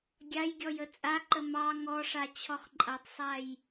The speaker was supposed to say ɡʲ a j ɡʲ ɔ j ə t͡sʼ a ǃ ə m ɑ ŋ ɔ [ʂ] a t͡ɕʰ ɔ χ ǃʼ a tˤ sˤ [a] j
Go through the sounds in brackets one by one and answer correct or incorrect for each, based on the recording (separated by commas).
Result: correct, correct